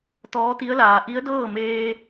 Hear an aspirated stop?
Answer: no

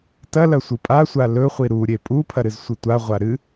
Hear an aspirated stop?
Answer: yes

